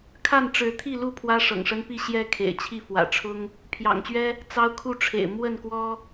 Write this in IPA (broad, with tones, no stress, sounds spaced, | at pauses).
kʰ a˥˨ n ʈ͡ʂ ɻ̩˨˦ t̪ʰ i˥˨ l u˥˨ pʰ w ä˦ ʂ ɤ̰˨˩ ŋ ʂ ə˦ n p i˥˨ ɕ j ɛ˥˨ kʰ ḛ˨˩ ɪ̯ t͡ɕʰ i˥˨ f w ä̰˨˩ ʈ͡ʂʰ ʊ˦ ŋ | pʰ j ɑ̰˨˩ ŋ t͡ɕ ɥ ɛ˦ | t͡s ɑ˦ ʊ̯ kʰ u˥˨ ʈ͡ʂʰ ḛ˨˩ ɪ̯ m w ə˥˨ n k w ɔ˦